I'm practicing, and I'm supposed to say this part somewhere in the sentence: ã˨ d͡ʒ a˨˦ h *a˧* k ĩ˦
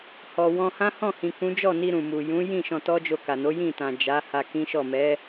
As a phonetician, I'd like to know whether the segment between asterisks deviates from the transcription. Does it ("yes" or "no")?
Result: no